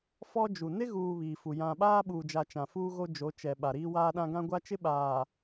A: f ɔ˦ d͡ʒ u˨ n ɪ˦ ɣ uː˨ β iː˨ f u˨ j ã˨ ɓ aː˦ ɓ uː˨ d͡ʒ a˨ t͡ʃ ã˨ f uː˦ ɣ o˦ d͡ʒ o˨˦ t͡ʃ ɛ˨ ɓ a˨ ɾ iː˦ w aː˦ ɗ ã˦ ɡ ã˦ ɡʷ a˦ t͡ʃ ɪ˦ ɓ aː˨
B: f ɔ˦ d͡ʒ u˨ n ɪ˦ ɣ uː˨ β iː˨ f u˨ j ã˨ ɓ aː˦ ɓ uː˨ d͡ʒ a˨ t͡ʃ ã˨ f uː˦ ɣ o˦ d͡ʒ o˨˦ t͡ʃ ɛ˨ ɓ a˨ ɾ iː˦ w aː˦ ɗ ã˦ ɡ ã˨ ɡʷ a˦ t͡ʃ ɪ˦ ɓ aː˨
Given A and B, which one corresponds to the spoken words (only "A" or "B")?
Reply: A